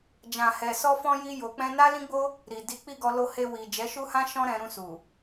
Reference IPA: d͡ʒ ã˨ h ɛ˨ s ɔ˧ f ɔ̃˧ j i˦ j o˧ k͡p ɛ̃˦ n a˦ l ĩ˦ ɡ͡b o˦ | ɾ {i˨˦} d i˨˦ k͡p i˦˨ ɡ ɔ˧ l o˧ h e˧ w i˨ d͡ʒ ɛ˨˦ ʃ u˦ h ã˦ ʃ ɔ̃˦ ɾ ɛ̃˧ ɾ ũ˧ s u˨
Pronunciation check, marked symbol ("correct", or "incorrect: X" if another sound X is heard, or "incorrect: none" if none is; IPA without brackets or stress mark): incorrect: i˨